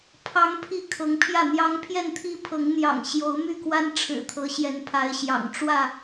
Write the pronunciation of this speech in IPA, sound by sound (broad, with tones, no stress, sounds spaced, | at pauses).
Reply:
pʰ ɑ˦ ŋ pʰ i˥˨ kʰ ɤ˨˦ ŋ pʰ j ä˥˨ n̪ j ɑ˦ ŋ pʰ j ɛ˥˨ n t̪ʰ i˦ pʰ ɤ˨˦ ŋ n̪ j ɑ̰˨˩ ŋ ɕ j o˨˦ ʊ̯ m y˥˨ k w a˦ n ʈ͡ʂʰ ɻ̩˨˩ t̪ʰ ɤ˨˦ ɕ j ɛ˨˦ n pʰ a˨˦ ɪ̯ ɕ j ɑ̰˨˩ ŋ ʈ͡ʂ w ä˥˨